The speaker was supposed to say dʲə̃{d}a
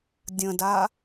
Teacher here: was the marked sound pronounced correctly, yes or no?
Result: yes